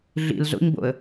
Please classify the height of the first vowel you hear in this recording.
high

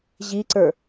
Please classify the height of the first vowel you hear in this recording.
high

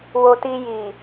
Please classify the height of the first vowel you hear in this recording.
mid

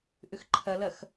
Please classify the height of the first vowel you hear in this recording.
high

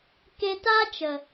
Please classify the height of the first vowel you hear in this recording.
mid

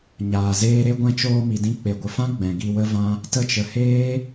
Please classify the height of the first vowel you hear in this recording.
low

